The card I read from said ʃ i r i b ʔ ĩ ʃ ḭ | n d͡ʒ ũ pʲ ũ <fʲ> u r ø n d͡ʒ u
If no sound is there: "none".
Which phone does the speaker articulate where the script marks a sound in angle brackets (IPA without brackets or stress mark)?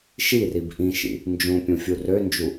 fʲ